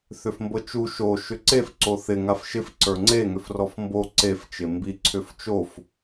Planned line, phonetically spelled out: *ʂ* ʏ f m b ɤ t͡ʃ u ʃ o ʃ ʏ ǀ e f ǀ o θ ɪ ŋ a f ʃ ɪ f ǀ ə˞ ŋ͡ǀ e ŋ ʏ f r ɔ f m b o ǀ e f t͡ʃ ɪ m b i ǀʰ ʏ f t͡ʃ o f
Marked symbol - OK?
no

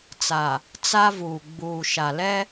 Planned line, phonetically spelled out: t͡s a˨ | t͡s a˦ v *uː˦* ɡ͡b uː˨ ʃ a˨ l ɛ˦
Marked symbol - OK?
no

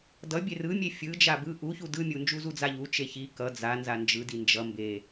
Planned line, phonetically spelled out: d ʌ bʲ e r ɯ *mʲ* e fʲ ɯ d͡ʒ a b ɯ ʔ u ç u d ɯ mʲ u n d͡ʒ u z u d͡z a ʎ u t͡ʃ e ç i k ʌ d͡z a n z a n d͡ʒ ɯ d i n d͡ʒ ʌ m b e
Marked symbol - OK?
yes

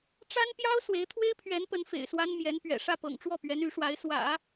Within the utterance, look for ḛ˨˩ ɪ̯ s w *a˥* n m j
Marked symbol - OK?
yes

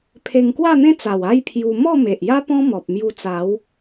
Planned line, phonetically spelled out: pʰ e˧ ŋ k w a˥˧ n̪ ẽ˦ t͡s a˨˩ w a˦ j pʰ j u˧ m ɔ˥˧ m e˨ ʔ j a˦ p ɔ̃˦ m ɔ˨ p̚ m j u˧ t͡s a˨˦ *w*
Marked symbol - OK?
yes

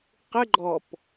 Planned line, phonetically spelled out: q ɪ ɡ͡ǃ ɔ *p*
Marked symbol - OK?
yes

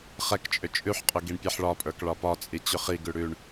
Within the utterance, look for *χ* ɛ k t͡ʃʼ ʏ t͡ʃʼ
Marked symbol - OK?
yes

